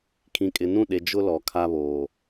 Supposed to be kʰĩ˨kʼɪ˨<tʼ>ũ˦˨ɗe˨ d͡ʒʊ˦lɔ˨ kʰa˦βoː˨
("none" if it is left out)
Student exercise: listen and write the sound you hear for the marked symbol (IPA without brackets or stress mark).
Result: n